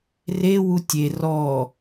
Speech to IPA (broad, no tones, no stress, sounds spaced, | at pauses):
r e w u tʲ e r ɔ